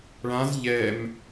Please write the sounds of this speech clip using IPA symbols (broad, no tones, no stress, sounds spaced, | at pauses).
ɭ ã z ʎ ɛ m